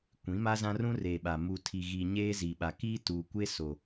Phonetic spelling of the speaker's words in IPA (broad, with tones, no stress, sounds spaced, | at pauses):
kʷ ĩ˨˦ m a˦ z ã˦ r ũ˦ r e˨ ɓ a˨ m u˨ tʰ i˨ ɣ i˨ ɲ eː˦ z i˨ ɓ a˨ k iː˦ t uː˨ kʷ e˦ s o˨